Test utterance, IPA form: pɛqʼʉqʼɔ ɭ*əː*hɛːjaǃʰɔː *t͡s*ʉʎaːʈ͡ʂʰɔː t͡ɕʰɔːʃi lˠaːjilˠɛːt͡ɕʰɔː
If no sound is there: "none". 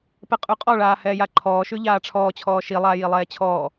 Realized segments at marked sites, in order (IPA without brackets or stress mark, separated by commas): aː, ʃ